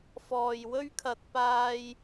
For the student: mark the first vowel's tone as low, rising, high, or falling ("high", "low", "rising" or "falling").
low